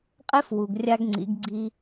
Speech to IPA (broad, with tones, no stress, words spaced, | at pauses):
qʼe˥fwu˩ɡ rʲa˧ɡŋ͡ǀḭ˩˧ɡɡ͡ǀi˧